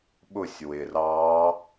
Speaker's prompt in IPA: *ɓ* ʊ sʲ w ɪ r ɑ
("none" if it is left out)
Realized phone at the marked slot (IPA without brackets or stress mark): ɓ